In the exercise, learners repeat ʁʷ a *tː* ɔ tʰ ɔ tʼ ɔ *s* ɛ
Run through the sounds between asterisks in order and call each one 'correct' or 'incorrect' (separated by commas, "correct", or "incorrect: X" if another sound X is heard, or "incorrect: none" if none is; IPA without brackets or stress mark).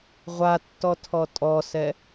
correct, correct